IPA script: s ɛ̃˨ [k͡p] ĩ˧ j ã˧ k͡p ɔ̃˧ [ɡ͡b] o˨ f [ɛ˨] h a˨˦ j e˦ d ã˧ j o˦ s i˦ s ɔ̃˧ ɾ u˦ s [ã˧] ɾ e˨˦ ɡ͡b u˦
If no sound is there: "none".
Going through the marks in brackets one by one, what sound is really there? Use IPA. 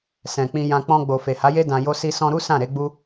k͡p, ɡ͡b, e˨, ã˦˨

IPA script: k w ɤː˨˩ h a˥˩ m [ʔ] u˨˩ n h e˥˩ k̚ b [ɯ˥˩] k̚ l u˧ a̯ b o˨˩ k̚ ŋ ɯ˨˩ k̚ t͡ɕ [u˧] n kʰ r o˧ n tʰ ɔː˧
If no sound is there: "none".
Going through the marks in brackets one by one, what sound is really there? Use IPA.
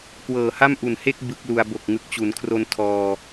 ʔ, ɯ˦˥, u˩˦

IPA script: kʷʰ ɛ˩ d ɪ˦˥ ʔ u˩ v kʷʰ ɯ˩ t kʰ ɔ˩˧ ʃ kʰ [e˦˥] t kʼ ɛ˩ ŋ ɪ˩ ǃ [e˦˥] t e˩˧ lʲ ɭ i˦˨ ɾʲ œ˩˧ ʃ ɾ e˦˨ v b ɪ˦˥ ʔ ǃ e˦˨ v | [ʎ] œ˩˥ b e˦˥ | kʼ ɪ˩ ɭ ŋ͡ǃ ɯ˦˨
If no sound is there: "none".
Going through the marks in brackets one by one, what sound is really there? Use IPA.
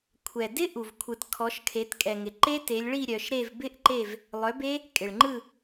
e˩˧, e˦˥, lˠ

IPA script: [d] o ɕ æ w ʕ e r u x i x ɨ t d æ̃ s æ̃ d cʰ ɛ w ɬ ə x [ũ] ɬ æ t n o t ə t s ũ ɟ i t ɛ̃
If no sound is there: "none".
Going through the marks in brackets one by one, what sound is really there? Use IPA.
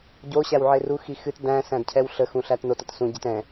ɟ, ũ

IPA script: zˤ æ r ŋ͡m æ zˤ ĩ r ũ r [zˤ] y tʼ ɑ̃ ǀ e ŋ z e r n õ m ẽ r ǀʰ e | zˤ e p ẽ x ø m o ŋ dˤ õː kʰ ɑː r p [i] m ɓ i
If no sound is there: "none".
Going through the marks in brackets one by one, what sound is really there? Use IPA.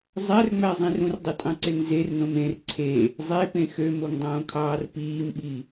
dˤ, iː

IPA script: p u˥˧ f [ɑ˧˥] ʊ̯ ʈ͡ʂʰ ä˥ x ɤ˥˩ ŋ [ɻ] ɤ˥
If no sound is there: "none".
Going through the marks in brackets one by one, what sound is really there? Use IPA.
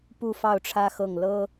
ɑ˥˩, l

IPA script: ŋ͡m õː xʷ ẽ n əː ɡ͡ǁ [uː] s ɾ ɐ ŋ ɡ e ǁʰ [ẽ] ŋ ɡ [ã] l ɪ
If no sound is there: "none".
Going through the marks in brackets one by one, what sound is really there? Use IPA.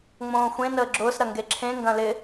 ʊː, ẽ, ɐ̃

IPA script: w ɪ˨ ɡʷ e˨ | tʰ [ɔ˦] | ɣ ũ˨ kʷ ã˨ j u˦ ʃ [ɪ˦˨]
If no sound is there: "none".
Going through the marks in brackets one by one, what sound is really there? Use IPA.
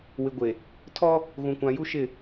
ɔ˦, ɪ˦˨

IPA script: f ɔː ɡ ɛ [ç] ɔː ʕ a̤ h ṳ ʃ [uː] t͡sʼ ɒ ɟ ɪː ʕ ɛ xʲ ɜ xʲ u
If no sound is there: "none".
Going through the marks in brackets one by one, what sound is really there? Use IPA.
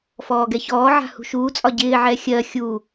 ç, uː

